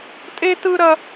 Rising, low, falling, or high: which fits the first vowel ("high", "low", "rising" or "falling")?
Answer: high